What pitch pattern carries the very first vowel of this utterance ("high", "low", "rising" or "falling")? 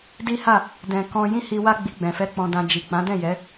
high